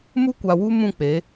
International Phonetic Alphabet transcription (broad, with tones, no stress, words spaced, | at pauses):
mu˦kʷa˨wu˦ mũ˦˨k͡pe˨˦